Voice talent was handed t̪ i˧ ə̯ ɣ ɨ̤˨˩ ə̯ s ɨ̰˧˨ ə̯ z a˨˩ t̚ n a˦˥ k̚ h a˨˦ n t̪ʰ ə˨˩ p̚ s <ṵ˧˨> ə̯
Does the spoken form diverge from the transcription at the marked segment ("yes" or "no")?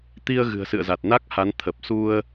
yes